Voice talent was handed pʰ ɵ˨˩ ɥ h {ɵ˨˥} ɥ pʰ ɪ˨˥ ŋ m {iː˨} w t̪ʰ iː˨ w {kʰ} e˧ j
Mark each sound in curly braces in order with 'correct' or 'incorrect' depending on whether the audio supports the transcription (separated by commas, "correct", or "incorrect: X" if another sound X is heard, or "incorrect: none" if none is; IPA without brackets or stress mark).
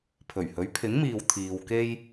correct, correct, incorrect: k